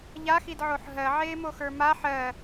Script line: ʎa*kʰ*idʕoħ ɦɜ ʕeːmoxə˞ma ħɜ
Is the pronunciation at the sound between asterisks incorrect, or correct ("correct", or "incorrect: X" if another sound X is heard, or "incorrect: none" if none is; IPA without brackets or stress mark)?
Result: incorrect: x